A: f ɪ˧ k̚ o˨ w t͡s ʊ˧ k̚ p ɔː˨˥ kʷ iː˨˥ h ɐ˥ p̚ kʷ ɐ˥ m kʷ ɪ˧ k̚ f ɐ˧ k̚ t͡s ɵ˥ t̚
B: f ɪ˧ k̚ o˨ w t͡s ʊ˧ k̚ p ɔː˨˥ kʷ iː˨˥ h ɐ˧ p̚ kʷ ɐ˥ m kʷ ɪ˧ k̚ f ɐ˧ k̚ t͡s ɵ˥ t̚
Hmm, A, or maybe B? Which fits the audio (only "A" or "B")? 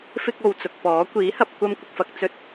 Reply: B